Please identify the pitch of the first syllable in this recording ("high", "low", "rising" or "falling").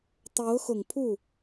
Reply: rising